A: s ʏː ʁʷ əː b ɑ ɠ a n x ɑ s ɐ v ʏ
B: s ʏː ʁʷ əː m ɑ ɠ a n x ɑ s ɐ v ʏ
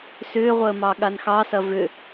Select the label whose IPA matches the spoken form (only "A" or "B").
B